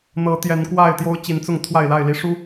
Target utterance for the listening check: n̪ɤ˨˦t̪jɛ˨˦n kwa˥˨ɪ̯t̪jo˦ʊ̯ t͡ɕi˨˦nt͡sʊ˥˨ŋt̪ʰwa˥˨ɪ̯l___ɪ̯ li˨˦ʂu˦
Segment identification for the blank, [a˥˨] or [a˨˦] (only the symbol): a˥˨